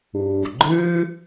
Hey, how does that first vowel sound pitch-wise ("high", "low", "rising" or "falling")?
low